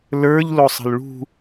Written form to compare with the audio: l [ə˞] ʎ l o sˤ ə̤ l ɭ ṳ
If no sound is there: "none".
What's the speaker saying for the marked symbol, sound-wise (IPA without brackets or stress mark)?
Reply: ə˞